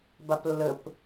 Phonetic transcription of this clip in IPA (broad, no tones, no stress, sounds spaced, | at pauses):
b a p lː ə p